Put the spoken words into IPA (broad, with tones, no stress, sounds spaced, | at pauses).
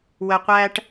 w ə˨ qʷ æ˧ ʈ